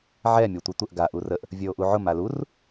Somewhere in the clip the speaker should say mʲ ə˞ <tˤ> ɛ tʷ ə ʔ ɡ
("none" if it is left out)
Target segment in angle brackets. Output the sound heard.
tʷ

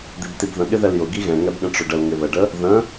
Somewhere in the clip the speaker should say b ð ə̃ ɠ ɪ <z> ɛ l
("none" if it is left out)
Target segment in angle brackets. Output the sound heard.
ð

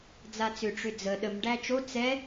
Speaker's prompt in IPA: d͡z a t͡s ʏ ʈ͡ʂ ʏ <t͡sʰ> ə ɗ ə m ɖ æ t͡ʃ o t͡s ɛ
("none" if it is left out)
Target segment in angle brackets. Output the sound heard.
d͡z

